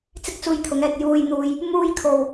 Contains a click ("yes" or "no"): no